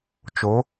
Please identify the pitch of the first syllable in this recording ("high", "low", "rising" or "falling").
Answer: rising